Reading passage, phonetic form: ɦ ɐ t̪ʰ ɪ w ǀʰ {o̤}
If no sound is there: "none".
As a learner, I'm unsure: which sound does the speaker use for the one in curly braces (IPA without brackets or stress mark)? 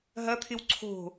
o̤